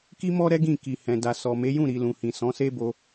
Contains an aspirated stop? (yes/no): no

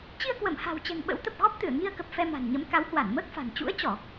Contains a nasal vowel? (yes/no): no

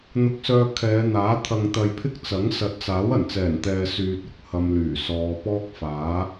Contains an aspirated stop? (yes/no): yes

